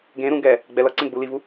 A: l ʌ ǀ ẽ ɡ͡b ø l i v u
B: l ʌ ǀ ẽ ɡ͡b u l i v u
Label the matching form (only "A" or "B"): B